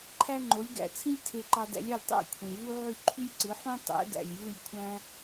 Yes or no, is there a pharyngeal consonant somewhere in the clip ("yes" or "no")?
yes